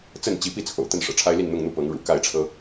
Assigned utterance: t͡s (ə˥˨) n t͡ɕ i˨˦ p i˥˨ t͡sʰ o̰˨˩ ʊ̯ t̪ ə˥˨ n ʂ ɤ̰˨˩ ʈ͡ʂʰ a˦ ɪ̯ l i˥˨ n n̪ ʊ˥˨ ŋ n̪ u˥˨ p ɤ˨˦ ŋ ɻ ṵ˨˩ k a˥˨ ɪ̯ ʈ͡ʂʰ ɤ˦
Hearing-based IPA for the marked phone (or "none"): ə˥˨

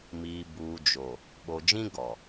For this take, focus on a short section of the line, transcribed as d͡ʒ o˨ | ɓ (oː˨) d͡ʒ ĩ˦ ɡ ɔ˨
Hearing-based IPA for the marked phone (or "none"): o˨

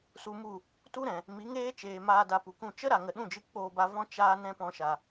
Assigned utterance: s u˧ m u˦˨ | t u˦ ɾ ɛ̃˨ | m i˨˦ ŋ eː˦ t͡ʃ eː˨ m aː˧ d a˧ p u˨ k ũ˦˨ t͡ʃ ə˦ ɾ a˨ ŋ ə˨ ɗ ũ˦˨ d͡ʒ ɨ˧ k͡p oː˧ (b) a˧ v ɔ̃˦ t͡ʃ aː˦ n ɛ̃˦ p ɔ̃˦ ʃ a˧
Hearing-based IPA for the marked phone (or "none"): b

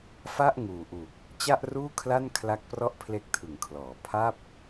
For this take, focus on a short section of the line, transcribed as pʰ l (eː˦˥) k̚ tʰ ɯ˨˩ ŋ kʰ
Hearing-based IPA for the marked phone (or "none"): e˦˥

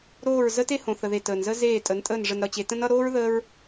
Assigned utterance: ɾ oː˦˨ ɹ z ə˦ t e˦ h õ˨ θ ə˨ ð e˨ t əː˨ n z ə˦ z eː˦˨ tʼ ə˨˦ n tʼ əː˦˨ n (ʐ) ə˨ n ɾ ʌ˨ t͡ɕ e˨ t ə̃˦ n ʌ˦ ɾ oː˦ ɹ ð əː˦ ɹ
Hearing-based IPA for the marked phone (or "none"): ʐ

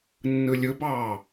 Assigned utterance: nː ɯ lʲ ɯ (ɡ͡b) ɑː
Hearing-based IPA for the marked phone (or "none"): b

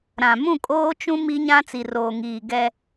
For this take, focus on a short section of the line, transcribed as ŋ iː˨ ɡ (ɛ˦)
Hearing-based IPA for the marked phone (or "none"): ɛ˦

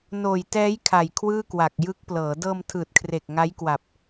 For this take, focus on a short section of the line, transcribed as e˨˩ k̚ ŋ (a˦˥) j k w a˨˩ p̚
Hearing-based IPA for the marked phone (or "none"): a˦˥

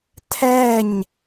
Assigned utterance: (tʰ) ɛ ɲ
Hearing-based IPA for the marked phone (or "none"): tʰ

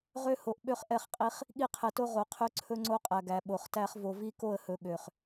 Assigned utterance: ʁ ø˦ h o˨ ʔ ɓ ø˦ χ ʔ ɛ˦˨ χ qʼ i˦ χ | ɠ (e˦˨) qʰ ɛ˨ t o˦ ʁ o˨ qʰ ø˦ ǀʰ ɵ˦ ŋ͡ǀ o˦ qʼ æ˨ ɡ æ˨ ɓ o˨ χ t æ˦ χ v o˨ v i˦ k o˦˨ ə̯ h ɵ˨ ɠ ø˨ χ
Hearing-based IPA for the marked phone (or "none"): i˦˨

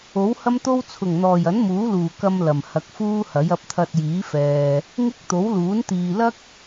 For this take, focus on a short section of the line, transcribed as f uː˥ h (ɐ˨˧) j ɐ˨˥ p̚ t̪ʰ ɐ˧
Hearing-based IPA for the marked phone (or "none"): ɐ˨˥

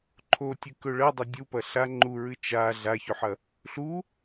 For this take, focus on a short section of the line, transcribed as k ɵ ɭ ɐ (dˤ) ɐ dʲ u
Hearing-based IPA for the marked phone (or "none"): dˤ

